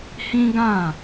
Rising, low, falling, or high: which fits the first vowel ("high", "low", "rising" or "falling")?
high